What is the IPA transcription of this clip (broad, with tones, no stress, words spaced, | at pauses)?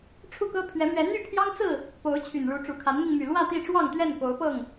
ʈ͡ʂʰu˥˨kɤ˦ pʰɥɛ˨˦mɥɛ˨˦ n̪y˥˨pʰjɑ˦ŋt͡sɹ̩˥˨ | po˨˦ʊ̯ t͡ɕʰy˨˩nɻu˨˦ ʈ͡ʂu˨˩kʰa˨˦nmi˧ŋ my˨˩lwä˥˨t̪i˥˨ʈ͡ʂwɑ˥˨ŋ t̪ɥɛ˥˨nko˨˦ʊ̯pɤ˥˨ŋ